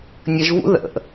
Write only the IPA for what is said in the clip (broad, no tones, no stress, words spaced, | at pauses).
nʲəʒvṵ ðə̰